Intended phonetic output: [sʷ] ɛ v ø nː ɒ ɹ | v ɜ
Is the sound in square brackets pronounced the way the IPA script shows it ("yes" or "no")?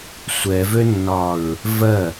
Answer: yes